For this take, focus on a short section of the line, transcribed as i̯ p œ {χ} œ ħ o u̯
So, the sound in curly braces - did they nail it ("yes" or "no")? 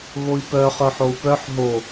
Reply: yes